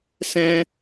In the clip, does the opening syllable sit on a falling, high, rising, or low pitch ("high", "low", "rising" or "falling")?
high